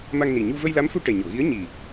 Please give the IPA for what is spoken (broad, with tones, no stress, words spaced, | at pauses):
ma˧ŋni˨˩ɲu˧ və˧jla˧˥mfu˧ ʈɛ˨˩ɲo˨˩˨ɣi˧˥ə̯ ɲi˨˩